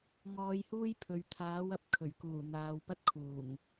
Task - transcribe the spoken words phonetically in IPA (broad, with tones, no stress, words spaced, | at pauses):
ŋɔː˨˧jhuː˥j pʰɵ˨ɥt̪ʰaː˨˥w ɐ˨˥p̚kʰɵ˨˩ɥkuː˨˩n̪aː˨w pɐ˥t̚kʰuː˨˩ŋ